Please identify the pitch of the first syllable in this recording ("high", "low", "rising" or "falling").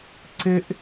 high